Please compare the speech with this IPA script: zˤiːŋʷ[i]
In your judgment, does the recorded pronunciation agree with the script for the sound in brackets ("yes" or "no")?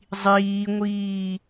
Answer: no